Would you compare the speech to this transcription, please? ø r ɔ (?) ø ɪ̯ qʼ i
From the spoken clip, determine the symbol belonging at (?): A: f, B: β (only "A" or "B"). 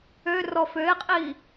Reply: A